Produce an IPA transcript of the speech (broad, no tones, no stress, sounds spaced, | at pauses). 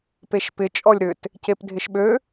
p e ʃ p ɪ t͡ʃʼ ɔ lʲ ɾ ʏ t | c e p dʱ ɪ ʃ ɓ ø